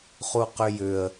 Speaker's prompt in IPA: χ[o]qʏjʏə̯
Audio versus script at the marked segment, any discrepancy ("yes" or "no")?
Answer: yes